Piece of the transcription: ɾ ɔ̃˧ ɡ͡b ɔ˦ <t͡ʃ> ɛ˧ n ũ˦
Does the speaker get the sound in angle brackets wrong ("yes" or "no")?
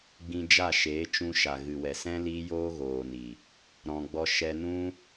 yes